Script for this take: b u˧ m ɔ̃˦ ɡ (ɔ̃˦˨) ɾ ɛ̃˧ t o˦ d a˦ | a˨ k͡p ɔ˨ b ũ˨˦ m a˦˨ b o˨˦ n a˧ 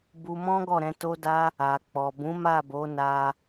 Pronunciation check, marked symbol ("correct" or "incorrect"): incorrect